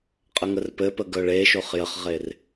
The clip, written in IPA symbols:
qʼ ə ŋ ə r p ɘ p ə ɡ œ ɭ e ʃ o χ j ə χ ʁ e r

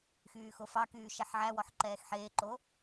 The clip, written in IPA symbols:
x yː x o f ɑ k yː ʃ ɛ ħ ʕ æ w ɔ ħ ǃ ɛː x ħ eː ǃ o

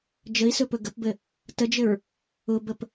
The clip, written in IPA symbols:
d͡ʒ ə i̯ s ɵ p ɵ ɡ ə p b ɘ | t ə d͡ʒ ɘ ɹ | ʊ b ə p

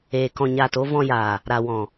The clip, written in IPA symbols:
eː˨ k ɔ̃˨ ɲ aː˨ t o˧ v ɔ̃˧ j aː˨ | ɾ a˨ w ɔ̃˨

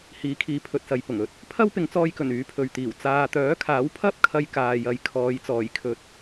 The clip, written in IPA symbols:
h iː˨˥ kʰ iː˨˥ pʰ ɵ˨ t̚ s ɐ˨ j p ʊ˨˩ ŋ ɵ˨˥ t̚ | pʰ ɐ˥ w p ɪ˨˧ ŋ t͡s ɔː˧ j k ɵ˨˩ n yː˨˥ pʰ ɵ˨ ɥ t̪ iː˨˩ w t͡s aː˨ t̪ œː˨˥ kʰ aː˨˥ w pʰ ɐ˥ p̚ kʰ ɐ˧ j k aː˨ j ɐ˨ j kʰ ɔː˨˧ j t͡s ɔː˨˩ j kʰ ɵ˨ t̚

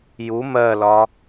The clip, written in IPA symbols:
j u m ɜ l ɒ

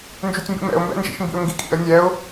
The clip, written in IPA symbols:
n d͡ʒ ʉ tʲ m b ḭ m ɛ̰ ʊ̯ m b ɛ̰ n d͡ʒ ḭ ʃ m b ḭ ʊ̯ ŋ ɡ i kʼ ḭ ə̯ nʲ ɛ ʊ̯

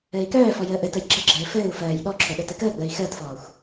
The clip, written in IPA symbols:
ɘː i̯ k œː f ɔ j əː ʔ ɘ t ə j ɡ͡ǁ ɘ ɡ͡ǁ ɘː f ɘː u̯ f ɜː j ɗ ɔ ǁʰ o ɗ ə˞ t ɘ k əː ɡ͡b əː i̯ x əː t f ɔː xʷ

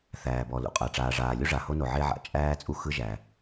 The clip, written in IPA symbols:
θ æː˩ b ɔ˩ l ṵ˩ qʼ a˩ ʈ͡ʂ aː˩ ʐ aː˩ lʲ u˥ ʐ a˩ h o˥ n o˩ ʕ e˥ ʕ a̰˩ t͡ʃʼ æː˥ t͡sʼ u˥ x ɯ˥ ʒ æ˩

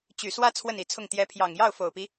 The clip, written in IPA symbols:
t͡ɕ y˨˩ s w ä˥ t͡sʰ w ə˥˩ n i˧˥ t͡sʰ ʊ˥˩ ŋ t̪ j ɛ˧˥ pʰ j ɑ˨˩ ŋ j ɑ˥˩ ʊ̯ f o˨˩ ʊ̯ p i˦

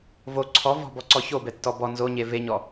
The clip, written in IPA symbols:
v o ǀʰ ɔ v ɔ̤ b ɔ ǀ ɔ ç o b ɛ tː ɔ b ɔ n z o ɲ e v e ɲ ɔ

